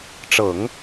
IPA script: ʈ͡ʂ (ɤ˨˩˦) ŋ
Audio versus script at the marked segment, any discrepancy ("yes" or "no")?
no